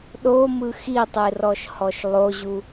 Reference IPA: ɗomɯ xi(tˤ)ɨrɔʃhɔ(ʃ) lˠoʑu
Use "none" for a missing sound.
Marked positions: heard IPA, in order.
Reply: tˤ, ʃ

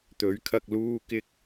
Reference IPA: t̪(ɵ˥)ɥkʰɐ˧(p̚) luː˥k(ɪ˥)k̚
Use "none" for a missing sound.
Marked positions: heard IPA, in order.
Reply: ɵ˨˥, k̚, ɪ˥

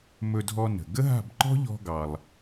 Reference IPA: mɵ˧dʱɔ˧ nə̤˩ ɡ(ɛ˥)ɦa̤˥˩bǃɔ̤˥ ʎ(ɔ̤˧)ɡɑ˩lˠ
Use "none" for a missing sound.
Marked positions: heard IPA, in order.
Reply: ə˥, ɔ̤˧

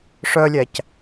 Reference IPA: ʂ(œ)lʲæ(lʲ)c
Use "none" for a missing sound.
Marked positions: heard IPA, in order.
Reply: œ, none

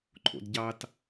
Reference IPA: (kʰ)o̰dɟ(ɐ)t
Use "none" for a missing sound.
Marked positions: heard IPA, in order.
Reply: ǃʰ, ɑ

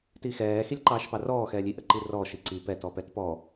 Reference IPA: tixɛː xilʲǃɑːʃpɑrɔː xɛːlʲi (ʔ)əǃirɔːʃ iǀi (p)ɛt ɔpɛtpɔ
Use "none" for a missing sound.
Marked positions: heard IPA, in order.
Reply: ʔ, p

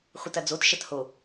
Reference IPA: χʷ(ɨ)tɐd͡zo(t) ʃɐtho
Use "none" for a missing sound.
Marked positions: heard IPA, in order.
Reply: ɨ, t

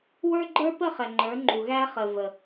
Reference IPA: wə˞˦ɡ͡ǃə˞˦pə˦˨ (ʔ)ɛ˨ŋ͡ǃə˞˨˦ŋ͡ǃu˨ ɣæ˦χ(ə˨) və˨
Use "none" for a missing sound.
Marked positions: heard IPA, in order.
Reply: χ, ə˨

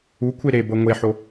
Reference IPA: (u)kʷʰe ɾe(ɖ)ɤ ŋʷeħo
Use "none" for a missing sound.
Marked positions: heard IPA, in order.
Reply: u, b

